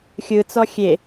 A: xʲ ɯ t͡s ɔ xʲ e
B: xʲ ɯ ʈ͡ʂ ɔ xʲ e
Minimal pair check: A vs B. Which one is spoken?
A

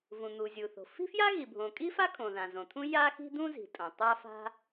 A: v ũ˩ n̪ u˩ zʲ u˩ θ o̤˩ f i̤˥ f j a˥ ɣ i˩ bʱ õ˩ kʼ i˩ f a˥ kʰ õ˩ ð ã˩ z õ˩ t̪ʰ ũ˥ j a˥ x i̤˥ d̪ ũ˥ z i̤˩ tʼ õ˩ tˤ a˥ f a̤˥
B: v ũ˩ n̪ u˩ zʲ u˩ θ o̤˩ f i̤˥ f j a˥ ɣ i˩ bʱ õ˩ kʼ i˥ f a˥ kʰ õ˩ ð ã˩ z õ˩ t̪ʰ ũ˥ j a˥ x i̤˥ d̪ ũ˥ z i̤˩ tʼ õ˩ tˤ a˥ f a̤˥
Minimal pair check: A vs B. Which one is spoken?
B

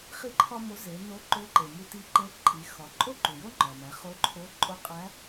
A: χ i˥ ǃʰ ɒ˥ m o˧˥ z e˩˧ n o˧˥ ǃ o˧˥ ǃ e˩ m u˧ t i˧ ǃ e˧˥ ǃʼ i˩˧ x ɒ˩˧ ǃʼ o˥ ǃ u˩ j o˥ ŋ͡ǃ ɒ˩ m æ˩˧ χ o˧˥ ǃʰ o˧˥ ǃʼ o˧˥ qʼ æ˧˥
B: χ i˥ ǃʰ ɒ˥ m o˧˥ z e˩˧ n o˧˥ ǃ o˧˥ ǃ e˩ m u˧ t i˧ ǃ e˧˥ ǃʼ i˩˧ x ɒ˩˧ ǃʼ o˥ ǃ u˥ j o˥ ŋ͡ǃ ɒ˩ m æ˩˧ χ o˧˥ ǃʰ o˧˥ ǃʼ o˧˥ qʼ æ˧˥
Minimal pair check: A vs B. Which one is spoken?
A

